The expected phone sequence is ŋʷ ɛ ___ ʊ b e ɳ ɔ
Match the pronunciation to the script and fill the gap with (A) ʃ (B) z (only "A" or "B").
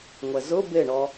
B